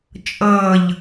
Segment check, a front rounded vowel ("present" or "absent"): absent